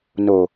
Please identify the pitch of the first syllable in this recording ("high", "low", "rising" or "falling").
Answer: low